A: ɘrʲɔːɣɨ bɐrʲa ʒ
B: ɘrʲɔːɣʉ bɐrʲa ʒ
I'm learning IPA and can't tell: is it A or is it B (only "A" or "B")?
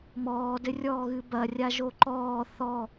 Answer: A